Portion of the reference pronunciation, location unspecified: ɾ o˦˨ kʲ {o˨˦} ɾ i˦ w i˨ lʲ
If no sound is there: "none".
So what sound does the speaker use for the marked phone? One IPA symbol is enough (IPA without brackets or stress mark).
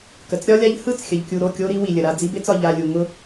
o˦